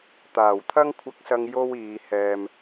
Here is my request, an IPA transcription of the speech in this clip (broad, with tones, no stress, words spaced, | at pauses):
t̪aː˨˩wt̪ʰɐ˥ŋkʷʰɐ˧k̚sɐ˧ŋ jo˥wiː˨˧hɛː˧m